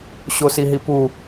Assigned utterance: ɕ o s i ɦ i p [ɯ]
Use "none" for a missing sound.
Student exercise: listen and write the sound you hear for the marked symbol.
u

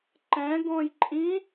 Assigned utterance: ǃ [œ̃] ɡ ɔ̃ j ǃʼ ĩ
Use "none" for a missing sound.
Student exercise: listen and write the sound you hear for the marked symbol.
ɛ̃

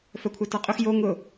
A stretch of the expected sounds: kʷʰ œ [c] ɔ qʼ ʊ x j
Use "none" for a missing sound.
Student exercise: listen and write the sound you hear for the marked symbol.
t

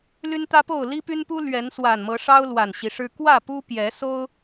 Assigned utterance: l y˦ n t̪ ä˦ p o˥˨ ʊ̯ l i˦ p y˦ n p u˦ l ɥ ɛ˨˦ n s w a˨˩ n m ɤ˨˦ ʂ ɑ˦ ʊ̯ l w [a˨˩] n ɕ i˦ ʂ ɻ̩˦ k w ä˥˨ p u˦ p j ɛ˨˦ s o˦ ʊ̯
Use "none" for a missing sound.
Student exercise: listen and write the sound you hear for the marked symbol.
a˨˩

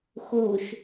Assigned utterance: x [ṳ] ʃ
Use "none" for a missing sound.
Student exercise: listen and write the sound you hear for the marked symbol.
u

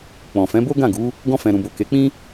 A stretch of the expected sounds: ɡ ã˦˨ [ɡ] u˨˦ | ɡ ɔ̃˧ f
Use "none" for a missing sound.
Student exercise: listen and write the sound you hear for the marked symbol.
ɡ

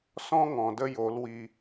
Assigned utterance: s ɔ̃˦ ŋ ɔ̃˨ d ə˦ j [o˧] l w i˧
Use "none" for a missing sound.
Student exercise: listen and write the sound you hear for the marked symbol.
o˨˦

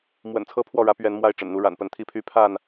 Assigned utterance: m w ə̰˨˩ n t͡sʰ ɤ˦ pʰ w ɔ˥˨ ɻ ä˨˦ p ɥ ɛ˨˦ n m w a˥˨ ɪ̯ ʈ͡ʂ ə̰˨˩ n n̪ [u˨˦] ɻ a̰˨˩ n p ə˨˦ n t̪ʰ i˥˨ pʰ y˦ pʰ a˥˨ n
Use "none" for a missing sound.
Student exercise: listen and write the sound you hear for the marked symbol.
u˨˦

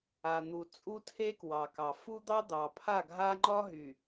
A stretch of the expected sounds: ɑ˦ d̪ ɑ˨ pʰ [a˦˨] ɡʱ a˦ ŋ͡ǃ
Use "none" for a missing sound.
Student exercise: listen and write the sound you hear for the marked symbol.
a˦˨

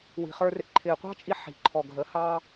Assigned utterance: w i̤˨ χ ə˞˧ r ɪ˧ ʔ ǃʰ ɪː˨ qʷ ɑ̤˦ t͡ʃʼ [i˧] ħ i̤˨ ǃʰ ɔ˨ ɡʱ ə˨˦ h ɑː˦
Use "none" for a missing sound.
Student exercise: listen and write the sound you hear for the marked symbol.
i˧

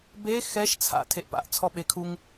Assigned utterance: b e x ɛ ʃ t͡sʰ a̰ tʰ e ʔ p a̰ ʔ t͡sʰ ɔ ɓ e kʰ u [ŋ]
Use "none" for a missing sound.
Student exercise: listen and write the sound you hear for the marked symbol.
ŋ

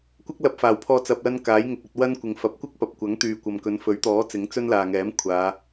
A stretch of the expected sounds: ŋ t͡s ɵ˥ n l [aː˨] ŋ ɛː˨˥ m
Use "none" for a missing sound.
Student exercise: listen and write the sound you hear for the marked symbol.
aː˨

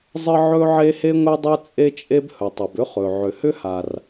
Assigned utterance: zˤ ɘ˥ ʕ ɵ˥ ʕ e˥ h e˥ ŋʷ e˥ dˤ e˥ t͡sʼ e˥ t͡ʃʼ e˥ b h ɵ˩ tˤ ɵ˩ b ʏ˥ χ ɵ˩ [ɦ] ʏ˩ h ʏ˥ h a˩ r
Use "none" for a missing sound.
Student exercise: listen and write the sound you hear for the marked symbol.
ʕ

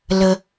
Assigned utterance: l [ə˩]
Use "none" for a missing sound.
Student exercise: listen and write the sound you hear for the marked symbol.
ə˩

